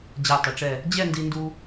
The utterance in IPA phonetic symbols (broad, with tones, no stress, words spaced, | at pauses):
d͡ʑæ˧˩tˤɪ˩˧ʈ͡ʂɛ˧˩ | d͡ʑɛ˥˧ndi˧ndu˧